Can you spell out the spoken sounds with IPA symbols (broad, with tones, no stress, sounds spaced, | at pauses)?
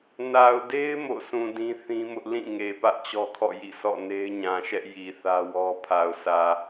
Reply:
n a˨ ʊ̯ d e˦ ɪ̯ m o̰˦˨ sʰ ũ˨ d ĩ˦ θ ĩ˦ m ʊ˦ ʔ l ĩ˦˨ ŋ e˨ p ä˦ ʔ t͡ɕ ɔ˦ kʰ ɔ̰˦˨ j ḭ˦˨ sʰ ɔ̰˦˨ n e˦ ɪ̯ ɲ ã˨ ʃ ɛ˦ ʔ j i˨ θ ä˦ w ɔ˦ pʰ a˨ ʊ̯ sʰ ä˨